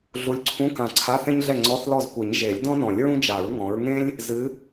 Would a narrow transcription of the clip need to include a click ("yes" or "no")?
yes